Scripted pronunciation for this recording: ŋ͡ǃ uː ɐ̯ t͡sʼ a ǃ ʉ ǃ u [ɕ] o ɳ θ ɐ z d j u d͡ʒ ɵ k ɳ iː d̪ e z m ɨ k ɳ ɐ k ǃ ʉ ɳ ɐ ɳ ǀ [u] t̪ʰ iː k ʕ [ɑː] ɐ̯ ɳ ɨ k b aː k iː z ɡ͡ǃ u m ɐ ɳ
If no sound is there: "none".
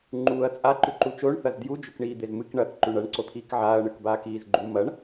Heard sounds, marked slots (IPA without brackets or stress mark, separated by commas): t͡ʃ, o, aː